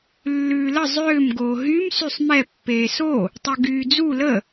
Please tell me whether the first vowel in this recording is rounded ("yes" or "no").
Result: yes